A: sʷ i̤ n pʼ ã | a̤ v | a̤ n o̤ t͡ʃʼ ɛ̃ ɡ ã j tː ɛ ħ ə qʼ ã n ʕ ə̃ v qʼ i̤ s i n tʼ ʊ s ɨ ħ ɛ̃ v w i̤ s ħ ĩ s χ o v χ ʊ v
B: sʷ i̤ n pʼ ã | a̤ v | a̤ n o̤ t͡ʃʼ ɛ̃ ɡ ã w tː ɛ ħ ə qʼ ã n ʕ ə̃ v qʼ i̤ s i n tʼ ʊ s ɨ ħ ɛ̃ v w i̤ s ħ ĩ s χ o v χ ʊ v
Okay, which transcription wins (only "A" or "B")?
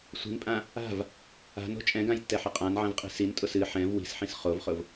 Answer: A